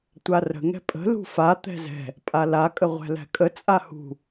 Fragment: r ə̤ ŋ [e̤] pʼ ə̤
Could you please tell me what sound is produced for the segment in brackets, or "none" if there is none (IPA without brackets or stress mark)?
ɛ̤